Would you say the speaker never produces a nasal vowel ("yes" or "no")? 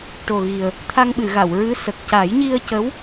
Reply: yes